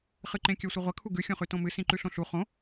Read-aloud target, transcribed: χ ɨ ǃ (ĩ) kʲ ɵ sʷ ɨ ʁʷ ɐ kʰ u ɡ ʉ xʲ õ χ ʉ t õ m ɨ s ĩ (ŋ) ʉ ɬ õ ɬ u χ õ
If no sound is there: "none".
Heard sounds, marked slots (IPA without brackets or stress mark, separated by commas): ẽ, ǃ